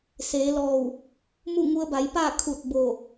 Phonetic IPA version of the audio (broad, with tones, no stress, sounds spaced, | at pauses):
s eː˩˧ l ɔː˧˩ w | m u˥˨ ŋ u˧ ə̯ b a˩˧ j p aː˥˨ kʰ u˧˩ t̚ b o˧˩